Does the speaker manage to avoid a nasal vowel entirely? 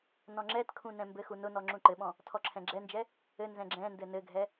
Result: no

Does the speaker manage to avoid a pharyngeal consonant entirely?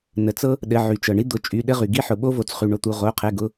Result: no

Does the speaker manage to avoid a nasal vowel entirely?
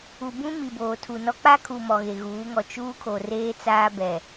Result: no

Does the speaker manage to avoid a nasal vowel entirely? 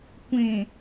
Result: no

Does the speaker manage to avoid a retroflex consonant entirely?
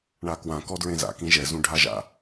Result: no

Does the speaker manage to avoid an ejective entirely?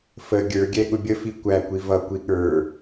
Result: yes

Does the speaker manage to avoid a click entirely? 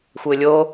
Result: yes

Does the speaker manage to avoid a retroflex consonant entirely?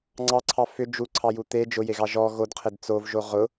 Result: yes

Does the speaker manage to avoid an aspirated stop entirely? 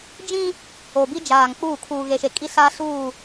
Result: no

